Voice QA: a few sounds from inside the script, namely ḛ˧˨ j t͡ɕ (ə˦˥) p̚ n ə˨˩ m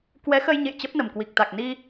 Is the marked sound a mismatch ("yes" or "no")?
no